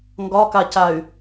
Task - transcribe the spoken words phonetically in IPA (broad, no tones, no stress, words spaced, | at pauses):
ŋɡɒkacay̯